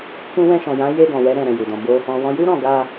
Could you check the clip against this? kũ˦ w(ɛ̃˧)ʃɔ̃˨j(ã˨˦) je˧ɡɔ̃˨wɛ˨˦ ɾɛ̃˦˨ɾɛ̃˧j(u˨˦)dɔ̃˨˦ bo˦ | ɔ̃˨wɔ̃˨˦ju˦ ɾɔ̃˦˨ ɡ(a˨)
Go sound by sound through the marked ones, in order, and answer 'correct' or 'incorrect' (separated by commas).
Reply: correct, correct, incorrect, incorrect